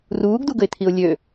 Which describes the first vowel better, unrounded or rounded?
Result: rounded